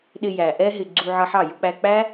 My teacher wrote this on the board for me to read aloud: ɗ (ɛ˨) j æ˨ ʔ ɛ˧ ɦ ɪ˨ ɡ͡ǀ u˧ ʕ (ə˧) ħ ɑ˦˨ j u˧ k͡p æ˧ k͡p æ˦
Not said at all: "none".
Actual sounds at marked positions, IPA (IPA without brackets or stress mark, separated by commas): ɪ˨, ʌ˧